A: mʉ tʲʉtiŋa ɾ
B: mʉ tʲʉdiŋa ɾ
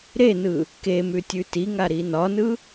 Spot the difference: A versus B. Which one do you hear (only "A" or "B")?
A